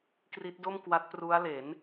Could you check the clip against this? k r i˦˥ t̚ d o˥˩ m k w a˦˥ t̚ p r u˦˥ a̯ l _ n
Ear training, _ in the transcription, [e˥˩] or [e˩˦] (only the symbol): e˩˦